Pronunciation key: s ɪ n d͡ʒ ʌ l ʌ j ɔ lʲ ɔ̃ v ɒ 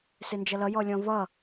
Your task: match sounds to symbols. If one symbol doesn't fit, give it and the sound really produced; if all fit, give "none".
ɒ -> ʌ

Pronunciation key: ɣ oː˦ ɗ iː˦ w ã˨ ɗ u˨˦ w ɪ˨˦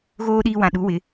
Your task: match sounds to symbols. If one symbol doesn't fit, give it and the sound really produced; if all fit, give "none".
none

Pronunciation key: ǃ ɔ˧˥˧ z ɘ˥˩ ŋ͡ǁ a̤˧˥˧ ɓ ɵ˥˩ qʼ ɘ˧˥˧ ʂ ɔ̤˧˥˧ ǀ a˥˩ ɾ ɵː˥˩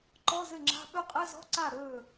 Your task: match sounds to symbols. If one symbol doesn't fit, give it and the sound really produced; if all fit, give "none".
ʂ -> z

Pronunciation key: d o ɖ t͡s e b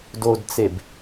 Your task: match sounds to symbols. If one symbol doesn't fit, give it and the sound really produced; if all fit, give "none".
ɖ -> d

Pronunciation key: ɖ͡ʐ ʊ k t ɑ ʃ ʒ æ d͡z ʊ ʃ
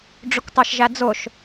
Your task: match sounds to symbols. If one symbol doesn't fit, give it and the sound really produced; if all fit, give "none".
none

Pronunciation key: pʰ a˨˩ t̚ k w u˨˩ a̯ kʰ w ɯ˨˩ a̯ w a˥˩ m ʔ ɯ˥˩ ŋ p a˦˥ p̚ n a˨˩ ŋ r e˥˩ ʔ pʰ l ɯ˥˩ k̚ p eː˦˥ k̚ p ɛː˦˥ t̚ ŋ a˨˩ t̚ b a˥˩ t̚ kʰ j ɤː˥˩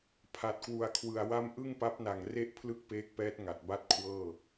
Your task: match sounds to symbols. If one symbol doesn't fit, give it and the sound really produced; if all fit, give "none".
j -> w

